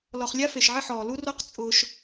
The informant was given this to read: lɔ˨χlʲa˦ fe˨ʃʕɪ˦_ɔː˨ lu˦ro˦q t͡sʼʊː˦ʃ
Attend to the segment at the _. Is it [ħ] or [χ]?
ħ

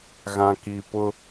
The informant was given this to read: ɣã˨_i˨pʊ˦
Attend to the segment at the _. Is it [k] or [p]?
k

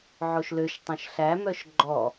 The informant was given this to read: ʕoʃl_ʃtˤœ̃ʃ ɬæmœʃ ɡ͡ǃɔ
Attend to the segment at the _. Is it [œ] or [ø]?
ø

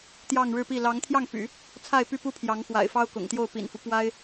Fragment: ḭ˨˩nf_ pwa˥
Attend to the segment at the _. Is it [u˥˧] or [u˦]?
u˦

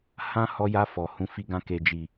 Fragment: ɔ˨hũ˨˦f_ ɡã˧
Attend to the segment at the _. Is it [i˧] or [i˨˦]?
i˧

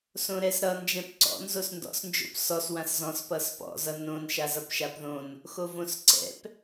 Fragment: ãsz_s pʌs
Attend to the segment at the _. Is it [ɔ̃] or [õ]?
ɔ̃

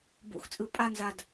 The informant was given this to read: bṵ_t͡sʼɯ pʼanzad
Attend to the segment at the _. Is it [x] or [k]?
x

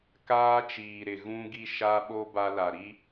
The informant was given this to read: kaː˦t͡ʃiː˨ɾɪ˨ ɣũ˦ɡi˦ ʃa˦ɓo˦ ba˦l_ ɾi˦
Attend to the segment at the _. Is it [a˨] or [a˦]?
a˨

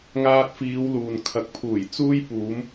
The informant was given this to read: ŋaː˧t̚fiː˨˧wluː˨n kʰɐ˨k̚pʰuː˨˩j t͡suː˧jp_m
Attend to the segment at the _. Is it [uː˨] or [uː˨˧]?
uː˨˧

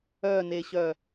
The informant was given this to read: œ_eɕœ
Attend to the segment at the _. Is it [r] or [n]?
n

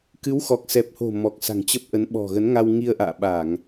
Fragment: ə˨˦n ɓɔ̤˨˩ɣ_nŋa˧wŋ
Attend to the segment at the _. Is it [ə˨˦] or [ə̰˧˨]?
ə˨˦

